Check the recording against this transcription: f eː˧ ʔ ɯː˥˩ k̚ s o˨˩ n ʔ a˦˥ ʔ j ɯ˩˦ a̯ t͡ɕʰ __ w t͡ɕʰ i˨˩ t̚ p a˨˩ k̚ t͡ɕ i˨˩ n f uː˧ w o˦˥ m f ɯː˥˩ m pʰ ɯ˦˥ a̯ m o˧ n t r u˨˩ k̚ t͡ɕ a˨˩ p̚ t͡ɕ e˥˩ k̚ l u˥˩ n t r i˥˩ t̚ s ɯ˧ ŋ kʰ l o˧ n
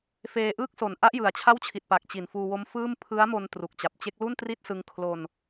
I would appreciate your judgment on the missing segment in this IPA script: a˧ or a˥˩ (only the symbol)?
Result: a˥˩